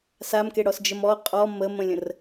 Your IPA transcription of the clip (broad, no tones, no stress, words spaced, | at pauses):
samkeɽɔsd͡ʒəm ɔ qʼɔ məmə̃lʲə̃r